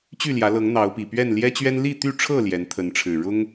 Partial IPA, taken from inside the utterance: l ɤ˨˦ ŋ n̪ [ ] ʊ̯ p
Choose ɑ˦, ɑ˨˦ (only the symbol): ɑ˨˦